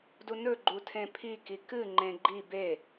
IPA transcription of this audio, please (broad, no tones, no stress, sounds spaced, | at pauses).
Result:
d u n ɵ ɡ͡ǃ u tʰ ẽ pʰ i k i k ɨ ŋ͡ǃ ẽ ɡ͡ǃ i b e